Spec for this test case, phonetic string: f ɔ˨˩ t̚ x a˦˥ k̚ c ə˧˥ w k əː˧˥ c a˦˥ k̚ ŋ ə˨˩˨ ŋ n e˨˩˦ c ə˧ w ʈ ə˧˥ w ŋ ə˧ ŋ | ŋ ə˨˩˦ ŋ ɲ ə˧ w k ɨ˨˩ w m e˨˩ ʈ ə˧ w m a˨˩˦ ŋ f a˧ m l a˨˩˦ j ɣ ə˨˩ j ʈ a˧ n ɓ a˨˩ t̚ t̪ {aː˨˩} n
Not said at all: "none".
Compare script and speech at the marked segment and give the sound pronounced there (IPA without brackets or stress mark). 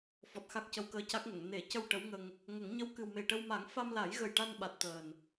əː˨˩